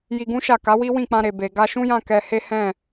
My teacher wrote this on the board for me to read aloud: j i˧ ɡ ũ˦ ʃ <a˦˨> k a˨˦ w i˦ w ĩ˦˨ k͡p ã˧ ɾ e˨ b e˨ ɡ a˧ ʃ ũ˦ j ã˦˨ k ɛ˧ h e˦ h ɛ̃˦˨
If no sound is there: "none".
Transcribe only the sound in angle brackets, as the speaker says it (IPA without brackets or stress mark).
a˦˨